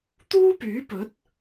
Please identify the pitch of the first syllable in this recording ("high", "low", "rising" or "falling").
high